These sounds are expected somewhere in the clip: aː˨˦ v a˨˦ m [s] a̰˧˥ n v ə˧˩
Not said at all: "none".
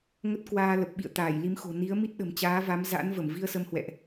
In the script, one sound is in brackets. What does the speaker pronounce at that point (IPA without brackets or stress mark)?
z